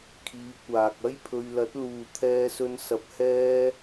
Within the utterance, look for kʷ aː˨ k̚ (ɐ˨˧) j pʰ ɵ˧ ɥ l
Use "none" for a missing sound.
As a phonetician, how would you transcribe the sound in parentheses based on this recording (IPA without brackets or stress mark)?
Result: ɐ˥